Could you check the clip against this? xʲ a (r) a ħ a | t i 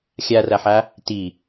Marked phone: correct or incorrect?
correct